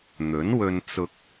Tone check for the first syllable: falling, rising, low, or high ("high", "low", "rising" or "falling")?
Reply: rising